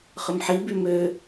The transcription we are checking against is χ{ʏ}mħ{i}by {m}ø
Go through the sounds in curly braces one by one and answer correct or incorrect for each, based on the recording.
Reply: correct, correct, correct

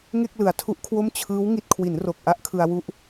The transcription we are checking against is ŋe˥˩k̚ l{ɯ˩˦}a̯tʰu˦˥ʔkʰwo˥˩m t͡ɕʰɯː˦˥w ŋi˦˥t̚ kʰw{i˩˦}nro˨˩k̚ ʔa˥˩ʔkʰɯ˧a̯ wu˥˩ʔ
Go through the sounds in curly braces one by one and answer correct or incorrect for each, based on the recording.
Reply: correct, correct

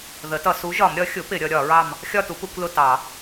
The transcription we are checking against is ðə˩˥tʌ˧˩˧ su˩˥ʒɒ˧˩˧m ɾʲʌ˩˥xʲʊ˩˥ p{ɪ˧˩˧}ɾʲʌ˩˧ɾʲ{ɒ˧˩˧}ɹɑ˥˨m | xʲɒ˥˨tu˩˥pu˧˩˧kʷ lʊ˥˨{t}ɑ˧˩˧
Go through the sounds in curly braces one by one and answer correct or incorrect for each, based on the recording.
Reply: correct, correct, correct

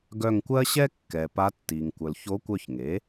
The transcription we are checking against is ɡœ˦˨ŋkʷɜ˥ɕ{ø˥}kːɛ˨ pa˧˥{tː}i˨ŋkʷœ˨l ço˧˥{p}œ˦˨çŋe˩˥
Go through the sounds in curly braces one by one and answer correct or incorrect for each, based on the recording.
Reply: incorrect: ɛ˥, correct, incorrect: kʷ

